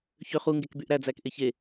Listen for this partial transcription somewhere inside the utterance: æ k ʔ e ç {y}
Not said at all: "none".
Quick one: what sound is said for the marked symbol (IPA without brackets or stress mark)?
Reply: e